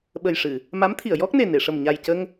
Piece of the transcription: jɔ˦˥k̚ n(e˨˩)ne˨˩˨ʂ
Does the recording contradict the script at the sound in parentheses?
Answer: no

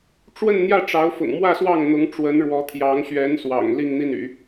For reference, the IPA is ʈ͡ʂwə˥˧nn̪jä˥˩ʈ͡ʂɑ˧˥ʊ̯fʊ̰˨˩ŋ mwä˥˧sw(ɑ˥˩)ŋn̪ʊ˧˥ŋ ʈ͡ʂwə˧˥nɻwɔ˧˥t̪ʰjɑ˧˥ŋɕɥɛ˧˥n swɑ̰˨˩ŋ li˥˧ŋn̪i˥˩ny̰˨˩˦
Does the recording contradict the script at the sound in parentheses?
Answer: no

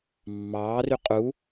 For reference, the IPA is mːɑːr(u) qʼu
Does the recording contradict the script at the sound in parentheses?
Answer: yes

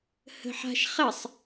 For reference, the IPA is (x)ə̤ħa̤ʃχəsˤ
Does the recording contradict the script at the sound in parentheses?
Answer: yes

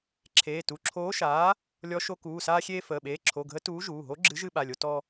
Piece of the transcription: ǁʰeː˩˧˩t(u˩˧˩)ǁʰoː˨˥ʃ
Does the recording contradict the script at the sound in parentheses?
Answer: no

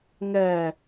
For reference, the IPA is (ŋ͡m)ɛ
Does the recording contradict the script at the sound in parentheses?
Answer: yes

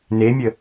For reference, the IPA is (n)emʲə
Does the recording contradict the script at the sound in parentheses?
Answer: no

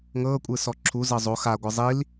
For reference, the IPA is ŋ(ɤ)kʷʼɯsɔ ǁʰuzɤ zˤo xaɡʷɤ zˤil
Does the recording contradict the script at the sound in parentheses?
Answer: yes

